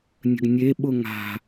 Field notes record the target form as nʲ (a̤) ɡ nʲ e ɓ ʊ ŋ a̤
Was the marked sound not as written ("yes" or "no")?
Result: yes